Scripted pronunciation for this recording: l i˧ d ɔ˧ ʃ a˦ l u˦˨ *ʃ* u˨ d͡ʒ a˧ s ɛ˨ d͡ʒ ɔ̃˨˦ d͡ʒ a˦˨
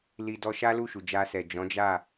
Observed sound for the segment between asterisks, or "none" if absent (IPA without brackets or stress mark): ʃ